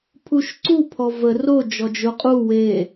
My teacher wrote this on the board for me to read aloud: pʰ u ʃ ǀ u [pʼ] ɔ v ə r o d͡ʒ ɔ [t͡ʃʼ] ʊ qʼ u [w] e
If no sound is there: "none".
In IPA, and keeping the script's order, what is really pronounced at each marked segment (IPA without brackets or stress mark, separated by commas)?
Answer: pʰ, d͡ʒ, w